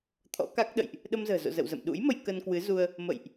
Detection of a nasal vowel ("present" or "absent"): absent